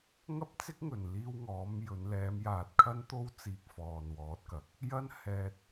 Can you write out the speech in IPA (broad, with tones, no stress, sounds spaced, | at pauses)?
ŋ ɐ˥ p̚ t͡s ɪ˥ k̚ ŋ ɵ˨˩ n l iː˧ w ŋ ɔː˨˥ m j ɵ˨˧ n l ɛː˨˧ m j aː˨ t̚ kʰ ɐ˥ n t̪ o˥ w t͡s iː˧ k̚ f ɔː˨ n w ɔː˨˥ t̚ k ɐ˨˥ k̚ | j ɐ˥ n h ɛː˧ t̚